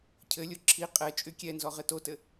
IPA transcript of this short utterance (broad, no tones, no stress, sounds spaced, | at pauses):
cʰ ɘ lʲ o ǁʰ i qʼ ɛ t͡ʃʼ y kʲ ɛ n z ɔ ʁ ɘ t o t ɘ